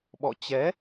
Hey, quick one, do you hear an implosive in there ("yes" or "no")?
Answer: yes